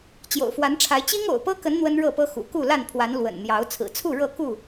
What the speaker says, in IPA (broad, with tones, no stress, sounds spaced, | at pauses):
t͡ɕ j o̰˨˩ ʊ̯ f w a˨˦ n ʈ͡ʂʰ a˨˦ ɪ̯ t͡ɕ i˦ ŋ o̰˨˩ ʊ̯ p ɤ˦ k ə˨˦ n n̪ w ə˦ n ɻ ɤ˥˨ p ɤ˦ x ṵ˨˩ k u˥˨ l a˥˨ n pʰ w a˨˦ n l w ə̰˨˩ n n̪ j ɑ˨˦ ʊ̯ t͡sʰ ɹ̩˨˩ t͡sʰ u˥˨ ɻ ɤ˥˨ k u˥˨